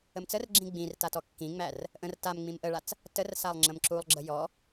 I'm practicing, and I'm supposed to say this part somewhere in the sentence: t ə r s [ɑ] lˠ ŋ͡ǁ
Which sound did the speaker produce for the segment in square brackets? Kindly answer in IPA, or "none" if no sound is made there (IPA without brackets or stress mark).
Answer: a